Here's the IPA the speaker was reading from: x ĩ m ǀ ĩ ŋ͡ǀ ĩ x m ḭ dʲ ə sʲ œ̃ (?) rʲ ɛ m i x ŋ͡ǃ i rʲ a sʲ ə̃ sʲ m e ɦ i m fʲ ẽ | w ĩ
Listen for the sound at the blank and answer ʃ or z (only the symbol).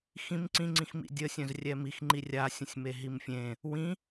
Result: z